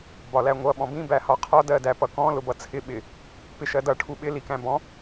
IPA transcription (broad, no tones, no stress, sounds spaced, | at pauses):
b ɒ l æ ŋʷ ʌ ɓ ɔ̃ b ĩ b æ h ɒ qʰ ɒ d ɜ d æ p ʌ k ɔ̃ l ʊ b ʌ t͡sʰ ɪ ɓ ɪ | p ɪ ʃ ɜ d ʌ ʈʰ u ɓ ɪ l i k æ̃ b ɔ̃